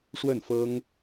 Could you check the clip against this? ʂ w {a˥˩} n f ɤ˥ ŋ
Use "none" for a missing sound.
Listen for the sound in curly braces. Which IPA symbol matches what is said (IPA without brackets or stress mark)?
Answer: ə˥˩